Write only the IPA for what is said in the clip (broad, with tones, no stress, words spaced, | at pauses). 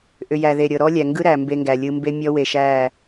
ʔʏ˨jæ˨ðe˨ ɾʲɤ˨ɾɔ˦lʲæ˨ ŋɡɯ˦ɾæ˨ mbe˦ŋɡæ˨lʲɯ˦ mbe˦mʲɔ˦ we˨ʃæ˦˨